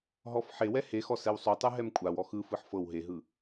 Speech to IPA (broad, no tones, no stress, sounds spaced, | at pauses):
ɦ ɔ f ħ e w ɛ h e x ɔ s ɛ w sˤ u tˤ ɯ ɦ ɛ m kʷʼ a w ɔ x ɯ f ɯ ħ f ɤ w ɦ e ɦ ɯ